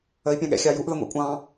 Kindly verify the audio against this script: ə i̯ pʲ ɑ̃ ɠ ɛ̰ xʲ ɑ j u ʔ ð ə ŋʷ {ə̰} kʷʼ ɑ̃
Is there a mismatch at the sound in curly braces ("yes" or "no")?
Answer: yes